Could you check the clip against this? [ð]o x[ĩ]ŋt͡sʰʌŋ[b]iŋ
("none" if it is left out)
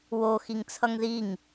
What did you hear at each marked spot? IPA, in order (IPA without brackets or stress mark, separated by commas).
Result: w, i, ð